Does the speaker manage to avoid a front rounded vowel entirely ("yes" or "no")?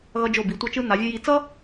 yes